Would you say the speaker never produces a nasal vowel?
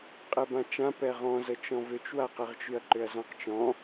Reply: no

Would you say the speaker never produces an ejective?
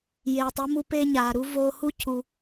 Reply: yes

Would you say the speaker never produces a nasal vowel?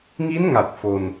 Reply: yes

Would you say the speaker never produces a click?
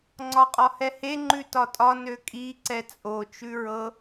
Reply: no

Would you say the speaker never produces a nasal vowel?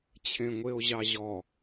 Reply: no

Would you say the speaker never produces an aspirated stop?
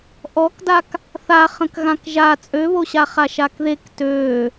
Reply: yes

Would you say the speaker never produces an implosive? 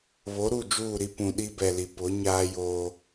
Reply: no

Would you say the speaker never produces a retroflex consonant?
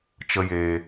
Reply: yes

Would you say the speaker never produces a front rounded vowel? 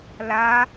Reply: yes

